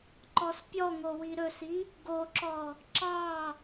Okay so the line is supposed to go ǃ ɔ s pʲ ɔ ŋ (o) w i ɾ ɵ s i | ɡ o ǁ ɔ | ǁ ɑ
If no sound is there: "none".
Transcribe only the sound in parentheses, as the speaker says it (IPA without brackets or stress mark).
o